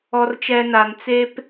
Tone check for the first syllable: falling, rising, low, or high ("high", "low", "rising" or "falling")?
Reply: low